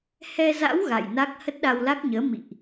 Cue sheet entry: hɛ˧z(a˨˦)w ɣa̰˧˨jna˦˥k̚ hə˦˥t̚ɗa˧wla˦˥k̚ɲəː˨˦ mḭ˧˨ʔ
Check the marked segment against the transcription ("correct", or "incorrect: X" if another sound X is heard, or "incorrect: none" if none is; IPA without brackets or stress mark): incorrect: a̰˧˥